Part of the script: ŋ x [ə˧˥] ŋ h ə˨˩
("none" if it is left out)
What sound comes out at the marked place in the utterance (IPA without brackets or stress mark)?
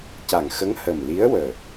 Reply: ə˧˥